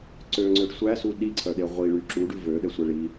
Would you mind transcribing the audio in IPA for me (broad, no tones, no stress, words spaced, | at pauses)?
ǀøŋ͡ǀøɖ sʷæsu ɗiǀʰœɗe ʁʷiɭy ǁuɖʉ vøɗɛsʷɛ ɭi